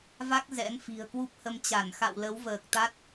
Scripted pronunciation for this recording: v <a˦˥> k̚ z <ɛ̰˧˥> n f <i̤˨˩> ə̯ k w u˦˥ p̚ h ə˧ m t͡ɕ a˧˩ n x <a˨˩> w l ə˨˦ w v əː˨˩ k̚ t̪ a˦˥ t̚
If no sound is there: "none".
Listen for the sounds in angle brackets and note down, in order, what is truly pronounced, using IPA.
a˦˥, ɛ̰˧˥, i̤˨˩, a̰˧˨

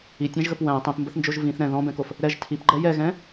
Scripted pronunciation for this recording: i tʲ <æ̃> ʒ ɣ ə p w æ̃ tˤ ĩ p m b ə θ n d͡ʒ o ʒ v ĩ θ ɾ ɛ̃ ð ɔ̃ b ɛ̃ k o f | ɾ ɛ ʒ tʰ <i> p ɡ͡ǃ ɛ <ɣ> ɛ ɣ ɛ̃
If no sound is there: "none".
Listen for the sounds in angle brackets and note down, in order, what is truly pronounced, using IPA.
æ̃, i, j

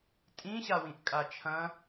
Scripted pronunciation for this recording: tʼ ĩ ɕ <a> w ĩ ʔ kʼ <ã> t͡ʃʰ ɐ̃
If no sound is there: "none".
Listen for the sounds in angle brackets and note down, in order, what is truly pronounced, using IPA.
a, a

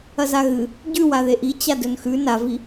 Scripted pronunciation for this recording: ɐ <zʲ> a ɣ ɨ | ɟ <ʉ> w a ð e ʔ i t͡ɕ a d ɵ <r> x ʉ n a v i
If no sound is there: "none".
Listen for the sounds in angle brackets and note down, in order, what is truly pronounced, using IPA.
z, ʉ, n

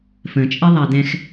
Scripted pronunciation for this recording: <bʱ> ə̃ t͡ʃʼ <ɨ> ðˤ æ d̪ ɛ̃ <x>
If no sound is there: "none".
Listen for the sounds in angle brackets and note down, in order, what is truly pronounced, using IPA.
f, ɛ, x

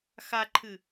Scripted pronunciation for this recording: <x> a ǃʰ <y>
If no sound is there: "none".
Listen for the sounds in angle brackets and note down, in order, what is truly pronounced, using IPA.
x, ɨ

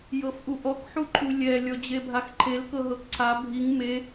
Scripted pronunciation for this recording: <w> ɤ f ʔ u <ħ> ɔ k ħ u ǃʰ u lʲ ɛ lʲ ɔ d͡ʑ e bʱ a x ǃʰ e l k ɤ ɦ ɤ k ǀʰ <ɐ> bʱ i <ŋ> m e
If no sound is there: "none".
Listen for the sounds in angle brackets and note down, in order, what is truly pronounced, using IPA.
j, ʔ, a, ŋ

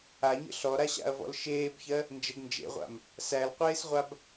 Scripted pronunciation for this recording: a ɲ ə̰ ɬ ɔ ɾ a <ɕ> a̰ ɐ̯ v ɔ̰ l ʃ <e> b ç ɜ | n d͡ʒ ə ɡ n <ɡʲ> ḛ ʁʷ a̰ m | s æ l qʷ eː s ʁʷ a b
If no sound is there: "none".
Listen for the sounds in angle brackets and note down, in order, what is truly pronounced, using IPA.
ɕ, eː, d͡ʒ

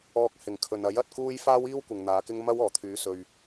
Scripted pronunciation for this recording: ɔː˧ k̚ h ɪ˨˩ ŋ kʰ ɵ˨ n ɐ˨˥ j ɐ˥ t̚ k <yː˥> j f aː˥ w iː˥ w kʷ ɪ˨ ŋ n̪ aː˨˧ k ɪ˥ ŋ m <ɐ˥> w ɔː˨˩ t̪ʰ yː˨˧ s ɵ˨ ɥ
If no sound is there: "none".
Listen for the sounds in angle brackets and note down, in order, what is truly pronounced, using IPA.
uː˥, ɐ˥

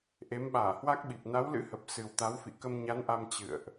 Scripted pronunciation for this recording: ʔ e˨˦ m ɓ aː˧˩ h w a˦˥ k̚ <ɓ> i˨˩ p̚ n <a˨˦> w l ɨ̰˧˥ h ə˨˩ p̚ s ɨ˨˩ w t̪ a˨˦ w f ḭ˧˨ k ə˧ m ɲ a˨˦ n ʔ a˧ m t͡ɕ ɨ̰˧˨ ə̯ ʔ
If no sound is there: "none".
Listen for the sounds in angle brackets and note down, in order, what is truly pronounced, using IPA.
ɓ, a˨˦

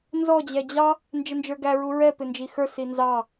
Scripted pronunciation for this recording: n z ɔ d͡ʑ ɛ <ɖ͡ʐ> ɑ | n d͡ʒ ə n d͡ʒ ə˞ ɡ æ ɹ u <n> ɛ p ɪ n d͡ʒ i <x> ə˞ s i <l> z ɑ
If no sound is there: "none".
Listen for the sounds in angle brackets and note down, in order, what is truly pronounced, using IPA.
d͡ʑ, ɹ, x, n

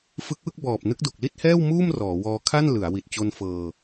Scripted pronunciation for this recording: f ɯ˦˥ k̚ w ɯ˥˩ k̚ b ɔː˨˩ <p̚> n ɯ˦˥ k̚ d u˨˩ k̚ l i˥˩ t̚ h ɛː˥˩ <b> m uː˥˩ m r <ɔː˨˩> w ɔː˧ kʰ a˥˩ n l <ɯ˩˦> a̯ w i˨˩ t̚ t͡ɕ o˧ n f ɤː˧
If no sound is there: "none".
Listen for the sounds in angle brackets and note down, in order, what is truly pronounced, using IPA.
p̚, w, ɔː˩˦, ɯ˩˦

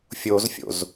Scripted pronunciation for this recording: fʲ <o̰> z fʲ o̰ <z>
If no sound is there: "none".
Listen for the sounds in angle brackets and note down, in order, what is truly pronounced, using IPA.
o, z

